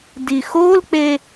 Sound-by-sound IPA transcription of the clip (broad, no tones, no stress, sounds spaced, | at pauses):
d i x o l k͡p e